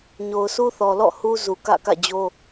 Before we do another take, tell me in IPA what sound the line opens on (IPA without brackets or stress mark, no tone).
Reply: ɲ